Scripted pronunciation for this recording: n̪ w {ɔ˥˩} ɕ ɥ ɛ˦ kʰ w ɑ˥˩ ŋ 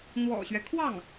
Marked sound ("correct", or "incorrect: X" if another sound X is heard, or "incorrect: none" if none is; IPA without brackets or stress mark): incorrect: ɔ̰˨˩